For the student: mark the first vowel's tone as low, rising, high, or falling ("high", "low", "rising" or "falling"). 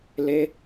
high